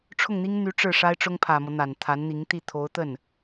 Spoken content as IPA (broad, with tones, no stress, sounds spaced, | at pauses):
ʈ͡ʂʰ ʊ˥˩ ŋ n̪ i˥ ŋ n̪ y˧˥ ʈ͡ʂ ɻ̩˥˩ ʂ a˥ ɪ̯ ʈ͡ʂ ʊ˥ ŋ pʰ ä˨˩ m ɤ˦ n̪ a˨˩ n t̪ʰ a˧˥ n n̪ i˧˥ ŋ t̪ i˥˩ t̪ʰ o˧˥ ʊ̯ t̪ ə˥˩ n